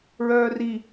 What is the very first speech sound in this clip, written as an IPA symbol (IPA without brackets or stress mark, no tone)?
ɹ